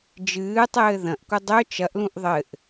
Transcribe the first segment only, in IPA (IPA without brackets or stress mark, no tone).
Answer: d͡ʒ